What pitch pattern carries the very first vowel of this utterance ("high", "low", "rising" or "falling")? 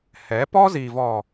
rising